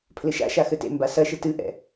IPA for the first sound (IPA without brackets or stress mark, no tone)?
pʰ